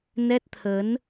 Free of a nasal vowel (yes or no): yes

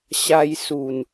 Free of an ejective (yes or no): yes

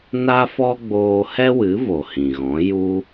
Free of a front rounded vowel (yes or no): yes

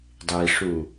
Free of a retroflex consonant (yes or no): no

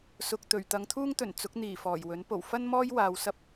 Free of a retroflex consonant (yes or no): yes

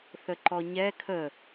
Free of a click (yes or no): no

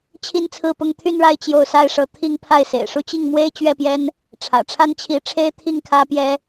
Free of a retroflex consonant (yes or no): no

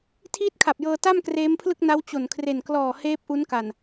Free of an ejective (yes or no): yes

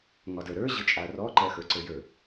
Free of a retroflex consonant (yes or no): yes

